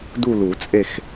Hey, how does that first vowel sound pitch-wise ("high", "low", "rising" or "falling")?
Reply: falling